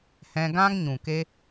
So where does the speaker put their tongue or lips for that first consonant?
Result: throat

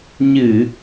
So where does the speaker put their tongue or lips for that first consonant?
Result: palate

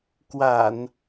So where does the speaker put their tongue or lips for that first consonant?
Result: velum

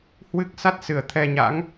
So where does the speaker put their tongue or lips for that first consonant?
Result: throat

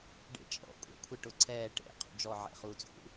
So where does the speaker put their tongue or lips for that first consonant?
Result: retroflex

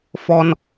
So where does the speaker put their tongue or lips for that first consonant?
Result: lips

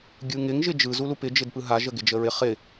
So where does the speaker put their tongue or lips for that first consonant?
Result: velum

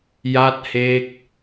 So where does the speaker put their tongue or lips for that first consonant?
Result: palate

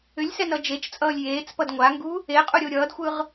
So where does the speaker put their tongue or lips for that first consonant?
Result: tongue tip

